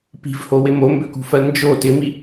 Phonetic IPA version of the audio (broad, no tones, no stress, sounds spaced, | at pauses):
p i̤ v h o w ɪ m o m b ø k ṳ f ɜ n d͡ʒ o t ɪ m i